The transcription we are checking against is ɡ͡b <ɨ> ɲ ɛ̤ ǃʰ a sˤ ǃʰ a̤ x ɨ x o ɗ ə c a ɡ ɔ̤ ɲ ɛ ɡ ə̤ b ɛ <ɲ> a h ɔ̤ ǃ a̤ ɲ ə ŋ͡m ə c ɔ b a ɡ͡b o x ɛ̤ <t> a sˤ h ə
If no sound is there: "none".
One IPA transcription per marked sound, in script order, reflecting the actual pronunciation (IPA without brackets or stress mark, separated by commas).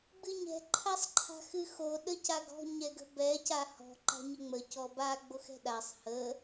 ɨ, c, ɗ